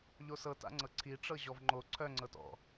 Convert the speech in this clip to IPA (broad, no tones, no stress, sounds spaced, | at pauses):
ʎ o s ɤ t a̰ ŋ͡ǀ ɤ ǀʰ i ʈ͡ʂ ɤ ʑ ɔ v ŋ͡ǃ o ǀʰ œ ŋ͡ǀ ɤ t ɔ̰